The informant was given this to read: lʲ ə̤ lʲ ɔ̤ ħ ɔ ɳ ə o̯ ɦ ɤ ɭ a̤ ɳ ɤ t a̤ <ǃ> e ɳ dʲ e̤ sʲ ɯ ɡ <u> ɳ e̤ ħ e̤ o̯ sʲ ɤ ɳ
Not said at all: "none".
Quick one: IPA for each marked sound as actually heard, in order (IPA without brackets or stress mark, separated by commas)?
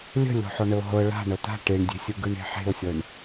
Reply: ʈ, ɯ